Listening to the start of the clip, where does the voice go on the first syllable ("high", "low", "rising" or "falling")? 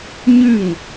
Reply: falling